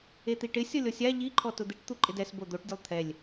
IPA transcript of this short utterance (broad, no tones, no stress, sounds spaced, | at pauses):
e t̪ i ʈ ɪ sʲ ɔ lʲ ɔ sʲ a ʎ i ǃʰ ɔ t ʊ d̪ i ʈ t̪ u ǃʼ ɪ d ɛ s b o d̪ o ʈ dʲ ʊ lˠ t̪ʰ ɛ lʲ